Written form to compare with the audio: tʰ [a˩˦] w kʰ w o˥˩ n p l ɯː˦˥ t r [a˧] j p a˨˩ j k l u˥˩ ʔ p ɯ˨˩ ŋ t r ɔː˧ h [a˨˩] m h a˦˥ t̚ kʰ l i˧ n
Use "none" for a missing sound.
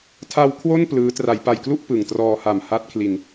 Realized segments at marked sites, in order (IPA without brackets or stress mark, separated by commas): a˧, a˩˦, a˨˩